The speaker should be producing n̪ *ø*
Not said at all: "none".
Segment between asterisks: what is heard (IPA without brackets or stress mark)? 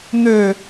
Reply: ø